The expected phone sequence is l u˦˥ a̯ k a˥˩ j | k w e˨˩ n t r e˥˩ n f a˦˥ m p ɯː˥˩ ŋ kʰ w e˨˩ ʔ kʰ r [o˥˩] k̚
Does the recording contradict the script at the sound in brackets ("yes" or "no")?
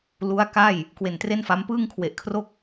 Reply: no